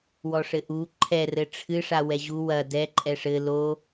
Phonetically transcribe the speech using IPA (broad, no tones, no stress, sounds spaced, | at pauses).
w ɔ ʂ ɘ ʔ u ǃʰ ɛ r ɘ ʈ͡ʂʰ ɨ ʂ a w ɛ ʑ u w ɐ d ɛ ǃʼ ɛ ʂ ɘ l o